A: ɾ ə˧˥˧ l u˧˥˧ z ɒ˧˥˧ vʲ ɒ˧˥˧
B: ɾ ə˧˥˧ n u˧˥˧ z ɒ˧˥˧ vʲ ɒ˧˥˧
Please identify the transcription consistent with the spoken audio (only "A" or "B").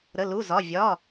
A